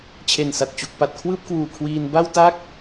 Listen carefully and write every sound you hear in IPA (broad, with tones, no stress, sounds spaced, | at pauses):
t͡ɕʰ e˨˩ n s a˨˩ t̚ t͡ɕ u˨˩ k̚ p a˨˩ t̚ kʰ w ɯː˥˩ p̚ k w uː˨˩ kʰ w iː˧ n b a˥˩ w t a˥˩ k̚